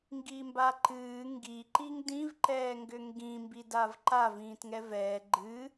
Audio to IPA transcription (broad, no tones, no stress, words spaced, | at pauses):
ŋɡimbaǃɨː ŋɡi ǃiŋdĩv ǃɛːŋɡʏŋɡĩ mbidavǃav ĩːtŋɛvɛː ɡ͡ǃɨ